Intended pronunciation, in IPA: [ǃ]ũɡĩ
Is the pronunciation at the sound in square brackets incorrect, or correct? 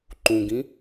correct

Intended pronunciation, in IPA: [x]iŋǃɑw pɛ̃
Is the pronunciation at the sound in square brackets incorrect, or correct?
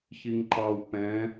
incorrect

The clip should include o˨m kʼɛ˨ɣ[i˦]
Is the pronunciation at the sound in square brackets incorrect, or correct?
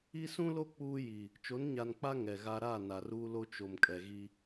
correct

